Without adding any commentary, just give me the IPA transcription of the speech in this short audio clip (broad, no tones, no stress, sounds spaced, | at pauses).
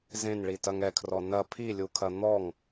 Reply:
z ẽ n ɭ i t ɐ ŋ ɛ kʰ r ɔ n ɐ pʰ i lʲ u kʰ ɐ n̪ ɔ ŋ